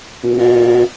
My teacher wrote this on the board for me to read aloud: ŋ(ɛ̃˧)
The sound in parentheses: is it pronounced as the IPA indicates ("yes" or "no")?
yes